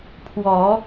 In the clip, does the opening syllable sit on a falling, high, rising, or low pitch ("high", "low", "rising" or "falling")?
rising